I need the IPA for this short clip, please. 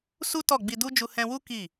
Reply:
s u˦ t ɔ˦˨ ɡ͡b i˧ d u˦ d͡ʒ u˧ h ɛ̃˧ w u˦ k i˦˨

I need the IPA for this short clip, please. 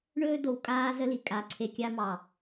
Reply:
ɳ ɵː˦ d o˨ w kʼ aː˦ z ə˦ l i˨ kʼ a˨ ǀʰ e˨ kʲ a˦ m ɑ˨

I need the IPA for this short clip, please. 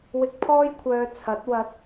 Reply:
w ɪ˧ k̚ pʰ ɔː˥ j kʷʰ œː˧ t͡sʰ ɐ˨˥ t̚ w ɐ˧ t̚

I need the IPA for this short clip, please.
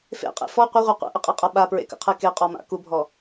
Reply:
f ḛ qʼ ḛ f ɔ qʷ ɪ ʁʷ ɛ qʷ ɛ̰ ʔ ɪ qʼ e qʼ a ɓ a p ɹ ḛ k ə̰ qʰ e k e qʼ ɔ m a̰ k u bʱ ɔ

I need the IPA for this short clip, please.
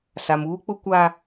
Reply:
s a˨ m uː˦ k͡p ʊ˦ kʷ a˦

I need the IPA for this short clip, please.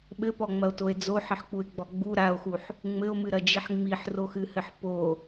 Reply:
ɓ ɘ p ɔ ŋ͡m ɐ o̯ t o e̯ d͡z o ħ ɘ ħ k͡p u e̯ ɡ͡b ɔ ɡ͡b u ɾ a o̯ x u ħ | ŋ͡m ɘ o̯ m ɨ ɾ ɐ d͡ʒ i ħ ŋ͡m i ħ r o x ɨ h ɘ ħ p o

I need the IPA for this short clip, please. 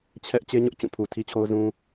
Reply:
t͡ɕʰ ɛ˦ ʔ t͡ɕ e˦ ɲ ʊ˦ ʔ t͡ɕ ũ˦˨ pʰ u˨ tʰ i˦ t͡ɕʰ o˦ ʊ̯ z ũ˦

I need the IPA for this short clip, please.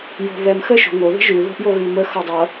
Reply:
j o̤ β ɛ m x ə ʃ o̤ ŋ o ð ə̤ ʒ ʉ ð o̤ ʔ j o ɣ ʉ m ə x ʌ dˤ ʌ

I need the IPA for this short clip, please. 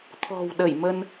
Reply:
t̪ʰ ɔ̤˨˩ w ɗ ə˧˩ j m ə˧ n

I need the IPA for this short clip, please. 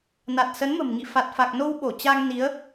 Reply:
n a˨˩ t̚ s ə˨˦ n m ə̤˨˩ m ŋ ḭ˧˨ f a˨˩ t̚ f a˨˩ k̚ n o˧ w ɓ o˧˩ t͡ɕ a˧ ŋ n i˨˦ ə̯

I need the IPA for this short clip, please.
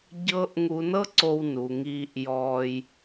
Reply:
ɟ ɤ˧ ʔ ŋ u˧ n ɤ˥ ǀ o˧ w n u˩ ŋ iː˧ ʔ j ɔː˧ j

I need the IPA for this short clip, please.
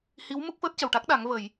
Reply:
h i˧˥ w m u˦˥ k̚ f əː˦˥ t̚ c ə˨˩ w ʈ a˦˥ k̚ ɗ a˨˩˦ ŋ v ə˨˩˨ j

